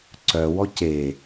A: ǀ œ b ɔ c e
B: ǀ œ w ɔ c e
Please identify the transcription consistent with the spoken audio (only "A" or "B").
B